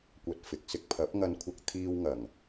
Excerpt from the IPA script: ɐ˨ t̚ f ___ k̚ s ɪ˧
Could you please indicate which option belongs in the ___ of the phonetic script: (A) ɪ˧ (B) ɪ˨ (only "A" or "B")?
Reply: B